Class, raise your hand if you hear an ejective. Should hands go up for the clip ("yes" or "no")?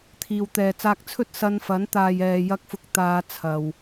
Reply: no